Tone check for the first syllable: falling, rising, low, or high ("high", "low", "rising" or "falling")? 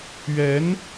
rising